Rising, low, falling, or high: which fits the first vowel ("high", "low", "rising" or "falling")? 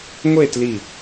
falling